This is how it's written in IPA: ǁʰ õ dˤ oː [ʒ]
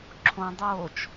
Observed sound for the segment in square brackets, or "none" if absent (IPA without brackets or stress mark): t͡ʃ